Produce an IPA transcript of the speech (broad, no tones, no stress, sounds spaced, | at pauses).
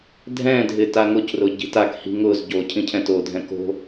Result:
dʱ ɛ̃ dʱ ɪ t a ŋ ʊ c r ʊ ɟ i̤ t a k h i̤ ŋ ʊ z ɟ o cʰ ĩ cʰ ɛ̃ t o dʱ ɛ̃ k o̤